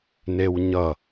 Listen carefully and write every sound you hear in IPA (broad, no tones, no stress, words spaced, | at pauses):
newɲʌ